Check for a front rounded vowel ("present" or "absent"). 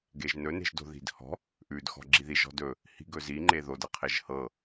absent